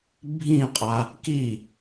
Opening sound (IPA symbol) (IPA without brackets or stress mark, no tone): bʱ